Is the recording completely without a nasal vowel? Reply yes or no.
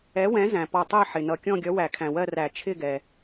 no